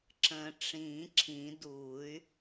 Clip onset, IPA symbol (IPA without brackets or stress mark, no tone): ǁ